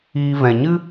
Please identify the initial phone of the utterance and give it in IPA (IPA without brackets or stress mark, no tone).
iː